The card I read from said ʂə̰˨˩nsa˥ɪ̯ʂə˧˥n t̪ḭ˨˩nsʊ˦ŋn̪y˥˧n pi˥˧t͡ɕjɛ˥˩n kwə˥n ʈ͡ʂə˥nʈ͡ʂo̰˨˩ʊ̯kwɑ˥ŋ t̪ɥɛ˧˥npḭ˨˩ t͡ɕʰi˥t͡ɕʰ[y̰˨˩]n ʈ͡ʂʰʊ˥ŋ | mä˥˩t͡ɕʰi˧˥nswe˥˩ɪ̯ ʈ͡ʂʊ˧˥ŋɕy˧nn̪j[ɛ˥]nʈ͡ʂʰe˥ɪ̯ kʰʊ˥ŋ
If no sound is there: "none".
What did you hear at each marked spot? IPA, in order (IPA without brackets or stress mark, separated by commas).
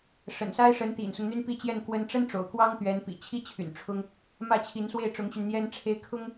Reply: y̰˨˩, ɛ˥